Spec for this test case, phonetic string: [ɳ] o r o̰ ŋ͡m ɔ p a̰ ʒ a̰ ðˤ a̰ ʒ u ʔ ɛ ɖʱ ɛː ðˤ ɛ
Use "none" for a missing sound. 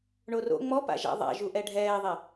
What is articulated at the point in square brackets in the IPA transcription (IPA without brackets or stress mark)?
ɳ